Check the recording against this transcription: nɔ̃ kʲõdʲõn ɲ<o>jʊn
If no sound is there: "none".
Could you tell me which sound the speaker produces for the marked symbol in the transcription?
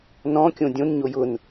o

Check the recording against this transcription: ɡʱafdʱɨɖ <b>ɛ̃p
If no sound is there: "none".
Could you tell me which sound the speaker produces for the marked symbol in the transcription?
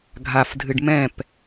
m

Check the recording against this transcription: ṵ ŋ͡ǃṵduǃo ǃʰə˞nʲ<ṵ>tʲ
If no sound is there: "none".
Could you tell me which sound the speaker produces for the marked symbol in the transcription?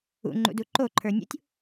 ṵ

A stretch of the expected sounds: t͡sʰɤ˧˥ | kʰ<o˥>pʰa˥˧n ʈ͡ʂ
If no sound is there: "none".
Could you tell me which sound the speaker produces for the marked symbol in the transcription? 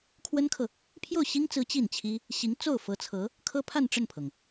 ɤ˥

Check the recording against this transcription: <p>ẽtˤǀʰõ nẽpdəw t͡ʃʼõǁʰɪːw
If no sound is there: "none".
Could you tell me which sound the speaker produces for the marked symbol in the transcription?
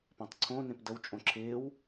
p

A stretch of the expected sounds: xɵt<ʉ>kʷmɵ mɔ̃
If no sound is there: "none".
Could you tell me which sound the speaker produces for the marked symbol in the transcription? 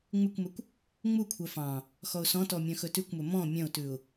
ʉ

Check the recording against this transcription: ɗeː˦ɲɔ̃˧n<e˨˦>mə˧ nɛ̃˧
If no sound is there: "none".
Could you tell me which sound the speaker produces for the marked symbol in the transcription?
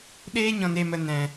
e˧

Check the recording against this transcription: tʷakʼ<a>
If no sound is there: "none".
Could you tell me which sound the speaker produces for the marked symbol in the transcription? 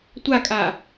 a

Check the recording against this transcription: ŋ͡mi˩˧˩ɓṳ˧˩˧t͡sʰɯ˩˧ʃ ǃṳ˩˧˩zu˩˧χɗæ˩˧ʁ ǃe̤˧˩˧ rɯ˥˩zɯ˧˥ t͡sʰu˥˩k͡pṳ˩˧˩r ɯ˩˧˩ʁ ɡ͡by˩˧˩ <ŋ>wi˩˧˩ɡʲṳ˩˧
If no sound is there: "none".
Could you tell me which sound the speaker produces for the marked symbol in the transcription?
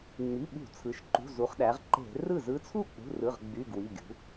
ɡ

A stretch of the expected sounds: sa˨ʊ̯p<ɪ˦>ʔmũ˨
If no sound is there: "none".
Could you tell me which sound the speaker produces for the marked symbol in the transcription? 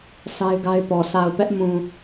ɛ˦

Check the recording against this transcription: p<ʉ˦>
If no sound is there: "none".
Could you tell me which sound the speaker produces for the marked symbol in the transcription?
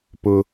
ʊ˦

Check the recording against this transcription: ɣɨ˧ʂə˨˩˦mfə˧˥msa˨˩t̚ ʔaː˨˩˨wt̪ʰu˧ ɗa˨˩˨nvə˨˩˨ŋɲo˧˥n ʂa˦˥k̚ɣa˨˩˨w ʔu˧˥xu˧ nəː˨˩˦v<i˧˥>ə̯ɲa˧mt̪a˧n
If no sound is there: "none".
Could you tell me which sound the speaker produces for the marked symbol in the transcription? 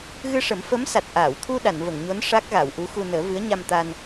ɨ˧˥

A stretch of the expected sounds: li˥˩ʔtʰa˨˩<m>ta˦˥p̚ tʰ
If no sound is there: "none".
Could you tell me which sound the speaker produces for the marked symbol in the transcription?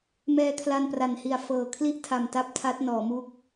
m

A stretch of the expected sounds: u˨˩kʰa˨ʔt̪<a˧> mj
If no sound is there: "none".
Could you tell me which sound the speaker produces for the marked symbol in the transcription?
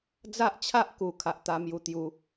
a˧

